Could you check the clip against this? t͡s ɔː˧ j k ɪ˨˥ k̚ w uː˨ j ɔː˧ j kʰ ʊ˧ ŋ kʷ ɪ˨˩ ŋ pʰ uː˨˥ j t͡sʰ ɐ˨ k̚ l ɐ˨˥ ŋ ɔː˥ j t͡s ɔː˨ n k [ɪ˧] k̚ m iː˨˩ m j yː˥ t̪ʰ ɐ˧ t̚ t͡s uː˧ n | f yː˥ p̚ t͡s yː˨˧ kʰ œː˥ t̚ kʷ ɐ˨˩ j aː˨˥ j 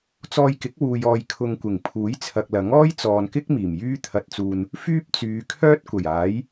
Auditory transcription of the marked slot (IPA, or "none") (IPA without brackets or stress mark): ɪ˥